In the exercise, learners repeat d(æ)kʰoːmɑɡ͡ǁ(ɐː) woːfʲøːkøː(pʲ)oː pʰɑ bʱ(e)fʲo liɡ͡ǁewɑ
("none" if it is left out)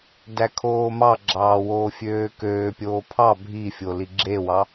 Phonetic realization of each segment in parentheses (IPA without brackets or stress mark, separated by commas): æ, ɑː, pʲ, i